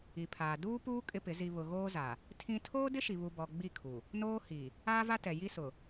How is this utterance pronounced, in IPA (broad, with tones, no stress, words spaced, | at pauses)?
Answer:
i˨pʰaː˨ duː˦puː˦ kʼɪ˦pɪ˨˦ zi˨βʊ˨ ɣoː˦za˨ | tʰĩ˦ tʰoː˦dɪ˦ʃi˨βu˨ bɔ˨ ɡ͡bi˦˨kʰu˨ | noː˦hi˨ | aː˦va˦ tɛ˨ ji˦sʊ˨